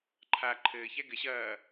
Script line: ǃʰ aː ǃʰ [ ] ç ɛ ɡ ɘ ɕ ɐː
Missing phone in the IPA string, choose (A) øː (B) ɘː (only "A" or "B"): B